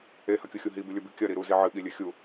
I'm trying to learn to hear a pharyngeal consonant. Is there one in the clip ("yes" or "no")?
yes